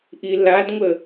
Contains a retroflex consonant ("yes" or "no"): no